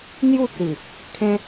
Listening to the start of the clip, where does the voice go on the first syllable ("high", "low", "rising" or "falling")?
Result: falling